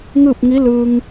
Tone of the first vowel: falling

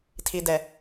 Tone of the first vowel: low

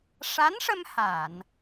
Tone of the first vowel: rising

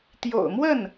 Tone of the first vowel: low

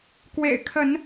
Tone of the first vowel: low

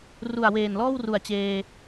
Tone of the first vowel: low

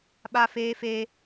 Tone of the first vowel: high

